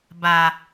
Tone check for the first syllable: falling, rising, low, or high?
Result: low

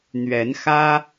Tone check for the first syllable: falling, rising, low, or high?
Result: rising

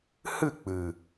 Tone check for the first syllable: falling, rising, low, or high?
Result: falling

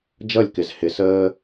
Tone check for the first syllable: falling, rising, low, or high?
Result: falling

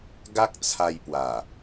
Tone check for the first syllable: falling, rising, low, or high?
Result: high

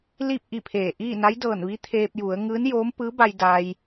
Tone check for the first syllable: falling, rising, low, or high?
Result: falling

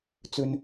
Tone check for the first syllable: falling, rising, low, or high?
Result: low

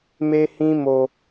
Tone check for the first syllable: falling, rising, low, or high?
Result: high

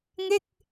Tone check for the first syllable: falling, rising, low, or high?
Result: falling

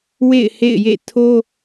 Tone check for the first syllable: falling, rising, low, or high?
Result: falling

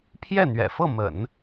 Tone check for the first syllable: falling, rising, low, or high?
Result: falling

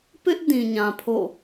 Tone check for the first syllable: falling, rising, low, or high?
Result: high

